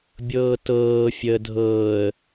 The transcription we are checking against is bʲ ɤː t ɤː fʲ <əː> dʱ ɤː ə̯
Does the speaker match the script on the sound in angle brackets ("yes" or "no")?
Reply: yes